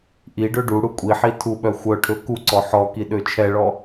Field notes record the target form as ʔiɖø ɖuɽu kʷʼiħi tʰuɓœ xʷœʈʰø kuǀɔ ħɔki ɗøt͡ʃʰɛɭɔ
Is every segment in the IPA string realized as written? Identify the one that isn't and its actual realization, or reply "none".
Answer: none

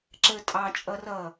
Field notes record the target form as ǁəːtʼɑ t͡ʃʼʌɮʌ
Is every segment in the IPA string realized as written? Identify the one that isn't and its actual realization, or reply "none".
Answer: ɮ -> r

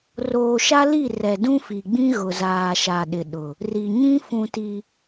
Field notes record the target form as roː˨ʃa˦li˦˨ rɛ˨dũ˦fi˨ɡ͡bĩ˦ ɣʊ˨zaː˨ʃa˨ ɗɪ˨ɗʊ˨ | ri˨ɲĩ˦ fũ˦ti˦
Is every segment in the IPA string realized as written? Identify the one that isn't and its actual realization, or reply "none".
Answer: none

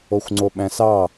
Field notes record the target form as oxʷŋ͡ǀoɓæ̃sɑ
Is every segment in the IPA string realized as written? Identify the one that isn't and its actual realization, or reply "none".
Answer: none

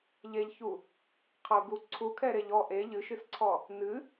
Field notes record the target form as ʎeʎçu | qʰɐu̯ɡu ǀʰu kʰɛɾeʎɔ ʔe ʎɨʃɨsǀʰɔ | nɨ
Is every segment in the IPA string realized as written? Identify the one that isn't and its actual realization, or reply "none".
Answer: none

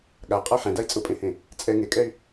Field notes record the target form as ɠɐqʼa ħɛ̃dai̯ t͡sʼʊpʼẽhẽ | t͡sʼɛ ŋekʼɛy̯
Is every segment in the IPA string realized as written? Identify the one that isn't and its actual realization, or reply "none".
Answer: ɐ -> a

